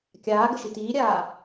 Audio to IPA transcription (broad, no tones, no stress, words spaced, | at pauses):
kʲaːɡə ʃitiːɾʲaː